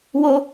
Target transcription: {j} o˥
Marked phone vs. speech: incorrect: w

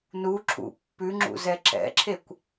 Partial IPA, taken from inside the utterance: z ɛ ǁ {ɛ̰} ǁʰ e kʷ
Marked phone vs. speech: correct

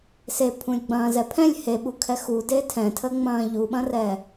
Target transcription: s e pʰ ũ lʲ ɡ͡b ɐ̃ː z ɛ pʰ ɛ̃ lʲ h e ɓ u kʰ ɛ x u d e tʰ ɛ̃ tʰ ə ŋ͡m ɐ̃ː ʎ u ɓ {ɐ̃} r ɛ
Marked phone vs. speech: correct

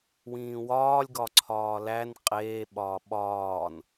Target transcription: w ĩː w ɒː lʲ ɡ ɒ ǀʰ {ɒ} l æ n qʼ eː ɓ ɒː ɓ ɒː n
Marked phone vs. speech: incorrect: ɒː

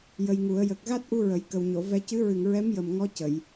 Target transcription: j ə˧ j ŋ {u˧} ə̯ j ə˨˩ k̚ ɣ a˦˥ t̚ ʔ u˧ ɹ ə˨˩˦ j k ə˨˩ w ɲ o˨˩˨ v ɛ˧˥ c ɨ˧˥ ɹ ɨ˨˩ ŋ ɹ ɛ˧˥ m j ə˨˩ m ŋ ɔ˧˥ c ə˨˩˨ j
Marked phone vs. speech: incorrect: u˨˩˦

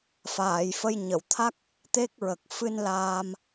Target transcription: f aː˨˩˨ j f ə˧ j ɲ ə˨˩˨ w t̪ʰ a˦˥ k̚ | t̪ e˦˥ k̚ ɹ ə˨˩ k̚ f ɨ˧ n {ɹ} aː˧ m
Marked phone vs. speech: incorrect: l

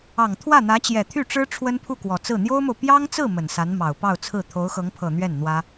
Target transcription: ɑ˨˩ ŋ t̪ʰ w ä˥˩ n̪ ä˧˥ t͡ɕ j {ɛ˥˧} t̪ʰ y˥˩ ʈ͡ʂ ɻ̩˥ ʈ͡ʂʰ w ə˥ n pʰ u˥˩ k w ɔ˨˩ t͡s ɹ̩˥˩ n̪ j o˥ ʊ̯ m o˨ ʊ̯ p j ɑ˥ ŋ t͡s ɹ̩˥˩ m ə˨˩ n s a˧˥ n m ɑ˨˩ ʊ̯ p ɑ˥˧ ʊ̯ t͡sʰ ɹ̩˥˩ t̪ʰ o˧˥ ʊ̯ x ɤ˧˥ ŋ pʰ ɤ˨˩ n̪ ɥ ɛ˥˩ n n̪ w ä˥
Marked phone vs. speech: incorrect: ɛ˨˩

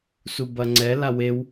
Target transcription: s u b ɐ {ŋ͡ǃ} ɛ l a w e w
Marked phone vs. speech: incorrect: ŋ͡ǀ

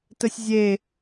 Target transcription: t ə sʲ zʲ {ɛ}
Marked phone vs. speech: incorrect: e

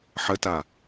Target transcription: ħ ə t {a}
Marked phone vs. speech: correct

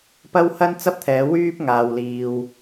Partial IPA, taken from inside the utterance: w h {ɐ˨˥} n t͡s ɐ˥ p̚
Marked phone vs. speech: incorrect: ɐ˥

